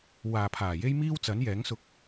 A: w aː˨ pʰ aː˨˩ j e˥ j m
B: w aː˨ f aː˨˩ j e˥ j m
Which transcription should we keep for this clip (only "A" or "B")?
A